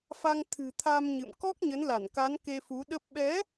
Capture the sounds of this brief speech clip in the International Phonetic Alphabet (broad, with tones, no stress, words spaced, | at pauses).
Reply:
fa˧ŋ t̪ʰɨ̤˨˩t̪ʰa˧mɲɨ̰˧˨m kɔ˦˥k̚ɲə˨˦nla˧˩nka˨˦n ke˧fu˨˦ɗə˦˥p̚ ɓɛ˨˦